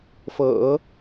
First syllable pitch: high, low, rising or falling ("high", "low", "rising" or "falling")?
low